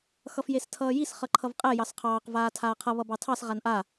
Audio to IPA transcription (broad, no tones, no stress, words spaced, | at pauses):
xʌfjestʰʌːjis χʌǃʰʌvqʼɛ jɑsqʰɑːq vaːtʰaːqʰʌ βʌbɑtʰɑs ʁanʔa